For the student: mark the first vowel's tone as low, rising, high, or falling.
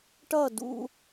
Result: falling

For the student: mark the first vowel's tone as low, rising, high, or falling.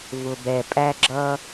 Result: low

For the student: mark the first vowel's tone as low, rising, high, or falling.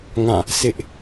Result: falling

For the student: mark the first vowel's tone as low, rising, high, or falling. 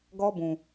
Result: high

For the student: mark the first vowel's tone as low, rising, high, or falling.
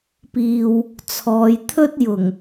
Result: low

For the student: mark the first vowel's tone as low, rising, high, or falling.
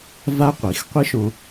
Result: high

